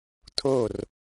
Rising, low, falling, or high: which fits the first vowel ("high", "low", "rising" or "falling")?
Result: falling